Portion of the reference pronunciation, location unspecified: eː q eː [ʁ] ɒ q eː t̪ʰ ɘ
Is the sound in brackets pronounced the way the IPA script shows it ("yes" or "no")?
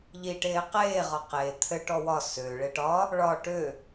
yes